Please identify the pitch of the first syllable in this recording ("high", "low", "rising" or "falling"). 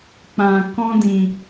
low